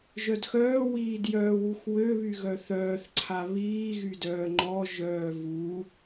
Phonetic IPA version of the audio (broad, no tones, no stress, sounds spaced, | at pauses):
ʒ œ d x œː w iː d j œː w u x w ø β y ɣ œ θ œː θ ǀʰ a β iː ɣ y d œː ŋ͡ǃ ɔ ʒ œː v u